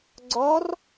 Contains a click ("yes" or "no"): yes